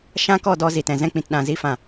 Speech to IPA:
ʃ ã˦ k ɔ˦˨ d ɔ˧ z i˨ t ɛ̃˨ z ɛ̃˧ k͡p ĩ˨ t ɗ ã˨ z i˧ f ã˨

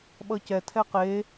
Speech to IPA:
ɓ ʌ c ɛ tʰ ɛ q e

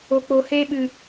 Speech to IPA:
o˧ k͡p o˧ h eː˦ ɓ ɨ˧

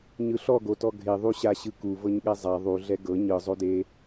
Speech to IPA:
ɲ ɯ ɬ ɔ ɡ o t ɔ ɡʱ e ðˤ u ɕ a ɕ ɯ k u v ɤ ɲ ɠ ɛ zˤ a ðˤ u ɮ ɛ ɡ ɤ ɲ ɯ zˤ o d e

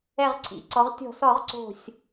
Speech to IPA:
ɛ˧˩ ʁ ǀʰ ḭ˩˧ ǀ ɔ˩˧ ʁ tʲ ɔ̤˧˩˧ s ɔ˧˩˧ ʁ ǀ o̤˧˩ sʲ

